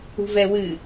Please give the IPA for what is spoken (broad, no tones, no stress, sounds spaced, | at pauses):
ṳ v ɛ w ɨ